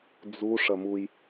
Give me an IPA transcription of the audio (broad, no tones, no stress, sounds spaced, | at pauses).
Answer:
d͡z u ʂ ɐ m u j